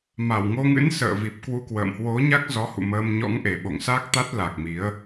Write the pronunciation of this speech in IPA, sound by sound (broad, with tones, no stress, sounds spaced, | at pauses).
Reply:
m a˧˩ w ŋ o˧ ŋ ɨ̰˧˥ n s ə̰ː˧˨ v i˨˩ p̚ k w u˧ k w ə̰ː˧˨ m h w o˨˦ ɲ a˦˥ k̚ z ɔ˨˦ h ṵ˧˨ m əː˧ m ɲ ɔ̰˧˥ ŋ ʔ e˨˩ ɓ o̰˧˨ ŋ s a˦˥ k̚ t̪ a˦˥ t̚ l a˨˩ k̚ m i˨˦ ə̯